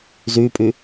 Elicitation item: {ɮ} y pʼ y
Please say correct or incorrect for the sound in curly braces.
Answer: incorrect